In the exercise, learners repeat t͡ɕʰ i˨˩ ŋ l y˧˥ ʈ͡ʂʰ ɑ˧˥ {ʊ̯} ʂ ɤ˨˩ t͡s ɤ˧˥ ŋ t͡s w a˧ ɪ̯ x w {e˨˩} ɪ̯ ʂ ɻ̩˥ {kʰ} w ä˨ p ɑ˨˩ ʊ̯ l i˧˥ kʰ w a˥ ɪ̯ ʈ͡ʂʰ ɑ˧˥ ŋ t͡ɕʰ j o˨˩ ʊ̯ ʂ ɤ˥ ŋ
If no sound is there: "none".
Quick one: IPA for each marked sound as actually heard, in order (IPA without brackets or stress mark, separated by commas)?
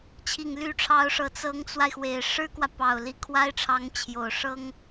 ʊ̯, e˨˩, k